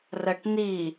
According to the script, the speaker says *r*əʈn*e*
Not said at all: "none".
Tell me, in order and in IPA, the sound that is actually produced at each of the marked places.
r, i

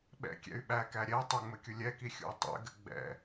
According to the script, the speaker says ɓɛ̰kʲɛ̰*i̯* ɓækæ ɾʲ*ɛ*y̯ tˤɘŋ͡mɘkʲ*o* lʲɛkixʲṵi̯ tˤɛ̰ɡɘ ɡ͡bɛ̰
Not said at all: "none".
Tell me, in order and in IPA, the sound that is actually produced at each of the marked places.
y̯, ɛ, u

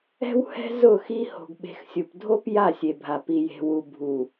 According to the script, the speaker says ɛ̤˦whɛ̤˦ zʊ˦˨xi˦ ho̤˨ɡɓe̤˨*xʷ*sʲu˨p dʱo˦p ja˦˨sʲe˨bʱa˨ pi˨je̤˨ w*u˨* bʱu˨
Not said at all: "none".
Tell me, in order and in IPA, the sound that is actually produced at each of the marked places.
x, u˨

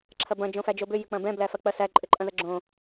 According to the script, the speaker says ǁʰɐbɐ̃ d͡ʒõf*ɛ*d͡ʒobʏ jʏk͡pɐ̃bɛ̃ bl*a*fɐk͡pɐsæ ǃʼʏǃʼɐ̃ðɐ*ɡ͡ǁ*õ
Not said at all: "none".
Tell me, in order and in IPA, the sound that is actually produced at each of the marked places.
æ, æ, ɡ͡ǁ

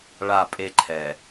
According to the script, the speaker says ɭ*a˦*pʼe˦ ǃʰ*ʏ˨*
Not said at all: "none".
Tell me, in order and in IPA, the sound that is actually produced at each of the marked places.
a˦˨, ɛ˨

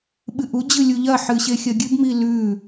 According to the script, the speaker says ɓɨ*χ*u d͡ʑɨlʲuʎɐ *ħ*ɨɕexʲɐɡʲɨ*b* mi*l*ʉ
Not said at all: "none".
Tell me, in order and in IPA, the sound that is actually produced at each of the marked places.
ʔ, ħ, b, l

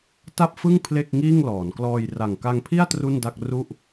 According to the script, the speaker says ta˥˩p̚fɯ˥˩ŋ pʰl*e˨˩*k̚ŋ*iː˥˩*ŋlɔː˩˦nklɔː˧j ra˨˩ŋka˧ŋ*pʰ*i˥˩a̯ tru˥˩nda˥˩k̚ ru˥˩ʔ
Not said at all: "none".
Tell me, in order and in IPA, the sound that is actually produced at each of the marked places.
e˥˩, iː˥˩, pʰ

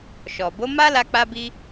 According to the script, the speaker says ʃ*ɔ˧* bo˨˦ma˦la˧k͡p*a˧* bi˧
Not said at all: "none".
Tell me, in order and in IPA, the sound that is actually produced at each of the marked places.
ɔ˨, a˧

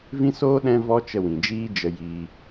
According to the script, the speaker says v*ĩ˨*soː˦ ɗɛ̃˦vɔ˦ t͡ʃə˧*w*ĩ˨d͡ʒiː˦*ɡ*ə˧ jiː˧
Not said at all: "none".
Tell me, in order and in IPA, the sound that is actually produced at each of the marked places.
ĩ˦, w, d͡ʒ

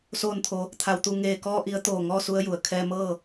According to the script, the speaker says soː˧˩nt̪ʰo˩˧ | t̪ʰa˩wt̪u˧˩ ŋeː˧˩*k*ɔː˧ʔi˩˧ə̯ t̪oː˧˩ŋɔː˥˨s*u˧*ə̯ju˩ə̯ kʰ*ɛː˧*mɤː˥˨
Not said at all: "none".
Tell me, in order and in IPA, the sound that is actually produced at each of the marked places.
k, u˧, ɛː˧

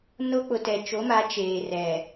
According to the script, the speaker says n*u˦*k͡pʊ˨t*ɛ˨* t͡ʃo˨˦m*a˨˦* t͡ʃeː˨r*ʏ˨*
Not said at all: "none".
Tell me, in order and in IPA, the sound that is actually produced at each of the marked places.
o˦, ɛ˨, a˨˦, ɛ˨

